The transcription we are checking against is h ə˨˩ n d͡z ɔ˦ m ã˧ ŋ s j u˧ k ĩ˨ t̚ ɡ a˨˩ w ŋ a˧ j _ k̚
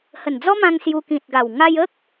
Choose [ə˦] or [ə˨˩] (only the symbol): ə˦